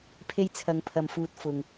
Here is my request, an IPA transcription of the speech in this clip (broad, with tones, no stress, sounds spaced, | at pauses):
pʰ e˧ j t͡sʰ ɐ˨ ŋ pʰ ɐ˨ m f uː˨ t̚ f ʊ˨ ŋ